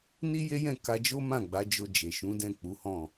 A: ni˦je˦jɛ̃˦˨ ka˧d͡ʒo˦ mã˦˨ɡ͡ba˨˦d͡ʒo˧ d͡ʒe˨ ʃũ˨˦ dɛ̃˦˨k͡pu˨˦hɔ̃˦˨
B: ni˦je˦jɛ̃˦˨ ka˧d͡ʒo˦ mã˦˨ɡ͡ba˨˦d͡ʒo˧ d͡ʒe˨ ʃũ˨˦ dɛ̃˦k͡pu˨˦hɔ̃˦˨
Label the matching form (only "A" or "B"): A